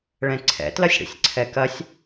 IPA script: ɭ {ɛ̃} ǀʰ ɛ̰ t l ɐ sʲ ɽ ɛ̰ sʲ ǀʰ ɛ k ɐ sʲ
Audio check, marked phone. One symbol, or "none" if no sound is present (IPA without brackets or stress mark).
ɛ̃